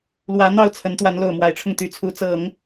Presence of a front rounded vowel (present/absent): present